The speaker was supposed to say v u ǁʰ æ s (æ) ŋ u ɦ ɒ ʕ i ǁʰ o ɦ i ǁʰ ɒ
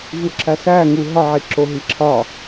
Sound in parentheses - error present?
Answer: no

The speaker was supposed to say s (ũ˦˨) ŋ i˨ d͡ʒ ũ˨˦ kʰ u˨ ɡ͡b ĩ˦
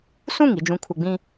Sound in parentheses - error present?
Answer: no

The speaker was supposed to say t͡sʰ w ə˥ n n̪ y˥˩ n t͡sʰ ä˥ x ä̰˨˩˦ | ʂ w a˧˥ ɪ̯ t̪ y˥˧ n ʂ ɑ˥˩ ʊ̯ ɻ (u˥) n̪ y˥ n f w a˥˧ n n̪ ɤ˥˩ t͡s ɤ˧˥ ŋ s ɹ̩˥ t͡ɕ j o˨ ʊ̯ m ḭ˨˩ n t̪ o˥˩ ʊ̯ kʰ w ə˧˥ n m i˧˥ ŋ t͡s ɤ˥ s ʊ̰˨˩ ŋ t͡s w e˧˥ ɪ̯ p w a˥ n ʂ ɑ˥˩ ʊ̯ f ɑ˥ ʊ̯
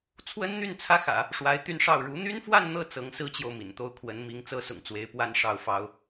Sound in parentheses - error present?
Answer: yes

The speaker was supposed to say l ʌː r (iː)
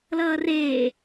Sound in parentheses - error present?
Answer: yes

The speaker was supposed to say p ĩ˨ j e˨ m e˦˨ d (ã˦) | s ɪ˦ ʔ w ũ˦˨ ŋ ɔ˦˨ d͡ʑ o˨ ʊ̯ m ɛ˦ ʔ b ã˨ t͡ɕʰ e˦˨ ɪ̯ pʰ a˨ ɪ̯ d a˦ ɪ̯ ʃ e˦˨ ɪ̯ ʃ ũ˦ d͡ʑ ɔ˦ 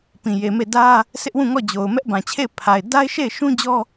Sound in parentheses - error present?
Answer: yes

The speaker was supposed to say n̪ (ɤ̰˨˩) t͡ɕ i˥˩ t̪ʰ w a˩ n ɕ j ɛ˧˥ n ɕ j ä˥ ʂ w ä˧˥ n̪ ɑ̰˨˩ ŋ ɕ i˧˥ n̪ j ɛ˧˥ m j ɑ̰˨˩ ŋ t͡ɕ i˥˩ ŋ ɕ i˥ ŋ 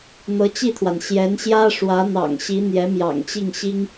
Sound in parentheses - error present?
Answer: yes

